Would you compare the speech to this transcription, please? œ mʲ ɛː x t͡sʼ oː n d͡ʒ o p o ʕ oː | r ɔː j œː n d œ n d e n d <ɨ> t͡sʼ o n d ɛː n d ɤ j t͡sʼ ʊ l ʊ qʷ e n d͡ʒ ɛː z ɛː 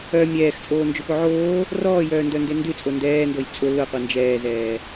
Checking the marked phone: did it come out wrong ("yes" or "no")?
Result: yes